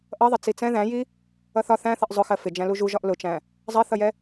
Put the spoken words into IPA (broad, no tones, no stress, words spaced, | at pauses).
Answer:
ʔʌðˤɪ t͡sit͡sɛ̃ ðæ̃ji | ʌθɒ θæ̃θʌʔ zˤʊxɜ fɪ d͡ʒæ̃luʒuʒɒʔ lʊt͡ʃæ̃ | zˤɜθʌjɛ